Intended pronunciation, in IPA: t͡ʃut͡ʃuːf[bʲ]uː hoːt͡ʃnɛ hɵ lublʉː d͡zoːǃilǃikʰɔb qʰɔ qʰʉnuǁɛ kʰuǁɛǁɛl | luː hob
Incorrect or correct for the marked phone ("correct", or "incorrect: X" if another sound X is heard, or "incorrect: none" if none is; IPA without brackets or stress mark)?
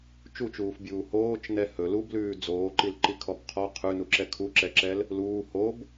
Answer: correct